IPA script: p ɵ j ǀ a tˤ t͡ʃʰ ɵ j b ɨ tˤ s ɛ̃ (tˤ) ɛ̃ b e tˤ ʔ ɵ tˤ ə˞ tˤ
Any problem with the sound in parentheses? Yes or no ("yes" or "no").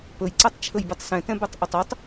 yes